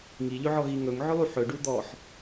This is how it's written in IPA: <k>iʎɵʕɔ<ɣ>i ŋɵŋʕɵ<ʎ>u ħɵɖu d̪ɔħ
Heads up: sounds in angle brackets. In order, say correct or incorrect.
incorrect: ŋ, correct, incorrect: lˠ

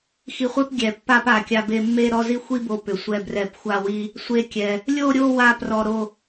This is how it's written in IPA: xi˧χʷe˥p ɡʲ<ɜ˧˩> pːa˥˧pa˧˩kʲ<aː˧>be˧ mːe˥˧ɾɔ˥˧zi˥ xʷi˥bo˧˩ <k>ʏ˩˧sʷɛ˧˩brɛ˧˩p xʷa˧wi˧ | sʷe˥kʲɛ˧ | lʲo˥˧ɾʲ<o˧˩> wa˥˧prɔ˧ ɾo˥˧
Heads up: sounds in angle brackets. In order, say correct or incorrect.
incorrect: ɛ˧˩, incorrect: a˧, incorrect: p, incorrect: o˥˧

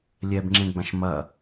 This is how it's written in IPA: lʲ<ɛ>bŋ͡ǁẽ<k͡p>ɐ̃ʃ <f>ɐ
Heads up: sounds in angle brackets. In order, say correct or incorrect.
correct, incorrect: ɡ͡b, incorrect: m

